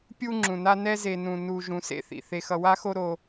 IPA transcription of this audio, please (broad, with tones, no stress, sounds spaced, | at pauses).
pʲ u˦ ŋ͡ǁ ũ˨ n a˦ n ɛ˦ z e˨ n ũ˨ n u˨ ʒ ũ˨ s ḛ˦ θ ḭ˨ θ e˨ x ʌ˨ w a˦ x o˦ ɾ o˦